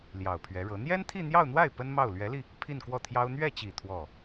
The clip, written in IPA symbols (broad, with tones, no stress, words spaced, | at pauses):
ljɑ˨˩ʊ̯pʰɥɛ˧˥ɻɤ˧˥ n̪jɛ˥nt̪ʰi˥˧n̪jɑ˥˧ʊ̯n̪wa˥˩ɪ̯ pə˥nmɑ˥˩ʊ̯ lɥɛ˧˥li˧ | pʰi˥˧nkwɔ˥˩t̪ʰjɑ˥ʊ̯ n̪ɥɛ˥˩t͡ɕi˨˩ t̪ʰwɔ˥˩